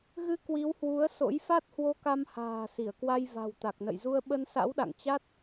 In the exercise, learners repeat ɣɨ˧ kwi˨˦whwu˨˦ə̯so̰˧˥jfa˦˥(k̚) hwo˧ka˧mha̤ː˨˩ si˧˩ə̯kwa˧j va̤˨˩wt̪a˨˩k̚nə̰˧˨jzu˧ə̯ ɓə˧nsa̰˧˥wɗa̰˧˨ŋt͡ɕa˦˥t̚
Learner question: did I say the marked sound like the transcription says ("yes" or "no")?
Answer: no